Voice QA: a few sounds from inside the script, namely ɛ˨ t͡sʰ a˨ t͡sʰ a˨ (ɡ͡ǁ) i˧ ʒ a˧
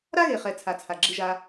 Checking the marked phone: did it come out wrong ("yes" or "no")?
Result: no